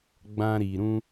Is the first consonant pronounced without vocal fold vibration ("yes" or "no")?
no